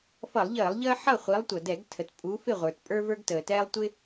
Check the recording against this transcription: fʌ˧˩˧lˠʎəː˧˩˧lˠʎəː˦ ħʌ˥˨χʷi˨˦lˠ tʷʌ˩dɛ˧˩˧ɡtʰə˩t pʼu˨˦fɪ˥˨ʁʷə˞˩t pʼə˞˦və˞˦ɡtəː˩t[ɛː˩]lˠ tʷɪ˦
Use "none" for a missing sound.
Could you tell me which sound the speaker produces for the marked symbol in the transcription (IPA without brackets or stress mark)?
ɛː˦